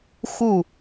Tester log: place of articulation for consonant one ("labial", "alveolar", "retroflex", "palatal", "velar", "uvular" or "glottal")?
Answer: velar